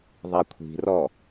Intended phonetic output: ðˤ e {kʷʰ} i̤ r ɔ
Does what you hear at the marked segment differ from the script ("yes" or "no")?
no